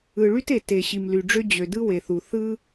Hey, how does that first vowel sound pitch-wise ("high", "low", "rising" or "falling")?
low